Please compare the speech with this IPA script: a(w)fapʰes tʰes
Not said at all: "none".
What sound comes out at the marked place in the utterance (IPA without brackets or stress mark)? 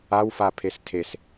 w